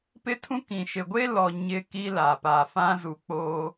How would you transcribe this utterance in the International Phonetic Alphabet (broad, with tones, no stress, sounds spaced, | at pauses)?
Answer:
p ɪ˦ tʰ ũ˦ k ĩ˨ ʃ ɪ˨ ɡʷ e˦ l ɔ˨ ɲ ɪ˦ k i˦ l a˨ p a˨ f ã˦ z u˨ k͡p oː˦